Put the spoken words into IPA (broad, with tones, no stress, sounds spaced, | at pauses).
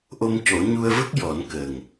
ʔ o˧ m c o˨˩˦ ɲ u˧ ə̯ v ə˦˥ k̚ j ɔ˨˩˦ n k ə˨˩ ŋ